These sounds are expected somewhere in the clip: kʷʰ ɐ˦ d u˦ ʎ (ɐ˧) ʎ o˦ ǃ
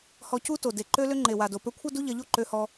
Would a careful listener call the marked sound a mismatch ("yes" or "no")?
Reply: no